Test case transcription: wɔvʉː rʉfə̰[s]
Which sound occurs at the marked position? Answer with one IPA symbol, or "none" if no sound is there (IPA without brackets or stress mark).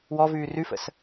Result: s